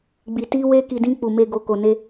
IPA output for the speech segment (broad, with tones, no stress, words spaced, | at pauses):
ɡ͡bi˨ ti˧we˧ ki˨dĩ˧ k͡pu˨me˧ ɡo˨ ko˨ne˧